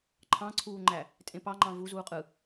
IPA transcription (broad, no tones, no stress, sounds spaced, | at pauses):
ǃʰ ɑ̃ ǀʰ uː ŋ͡ǃ æ | tʼ ẽ p ɑ ŋ͡ǃ ɑ̃ v u z uː qʼ ɯ